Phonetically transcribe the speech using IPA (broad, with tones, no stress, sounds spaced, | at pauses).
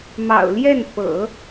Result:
m ɑ̰˨˩ ʊ̯ l j ɛ˥˩ n f ɤ̰˨˩˦